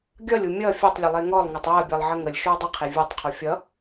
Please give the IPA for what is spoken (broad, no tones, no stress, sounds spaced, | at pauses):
ɡʲ ʌ lʲ u mʲ ʌ fʲ ɔ tˤ lʲ ə lˠ e ŋ ɔ lˠ ŋ ʌ tˤ e ə̯ bʲ ʌ lˠ ʕ ə ŋ ə lʲ ʃ u ɪ̯ dˤ ə qʰ e vʲ u tˤ qʰ u fʲ ʌ